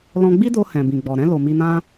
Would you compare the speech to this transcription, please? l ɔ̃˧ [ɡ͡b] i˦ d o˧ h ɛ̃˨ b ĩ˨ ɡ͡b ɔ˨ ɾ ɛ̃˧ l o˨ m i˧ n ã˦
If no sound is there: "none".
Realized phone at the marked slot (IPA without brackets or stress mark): ɡ͡b